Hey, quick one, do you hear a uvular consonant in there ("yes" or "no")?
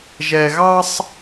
no